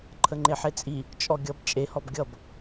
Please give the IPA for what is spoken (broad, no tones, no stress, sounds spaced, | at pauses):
ǃʰ ə ŋ͡ǃ e ħ e t͡sʼ i | t͡ʃʼ ɔ ɡʲ ʌ b t͡ʃʼ e h ɔ b ɡʲ ʌ b